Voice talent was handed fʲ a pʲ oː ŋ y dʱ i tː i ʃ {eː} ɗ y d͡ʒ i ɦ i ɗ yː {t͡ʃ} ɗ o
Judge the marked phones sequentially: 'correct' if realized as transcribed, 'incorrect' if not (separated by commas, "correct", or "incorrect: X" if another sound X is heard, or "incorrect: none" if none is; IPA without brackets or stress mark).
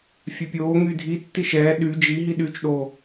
incorrect: ɛː, correct